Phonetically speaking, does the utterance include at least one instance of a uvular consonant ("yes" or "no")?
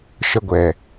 no